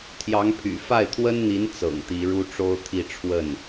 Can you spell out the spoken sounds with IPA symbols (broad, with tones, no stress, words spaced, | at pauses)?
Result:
t̪ʰjɑ˧˥ŋpʰy̰˨˩ fa˥˩ɪ̯t̪ʰwə˥nn̪i˧˥n t͡sɤ̰˨˩ŋt̪i˧˥ ɻu˥ʈ͡ʂo˥ʊ̯t̪ʰi˥˧ ʈ͡ʂʰwə˥˩n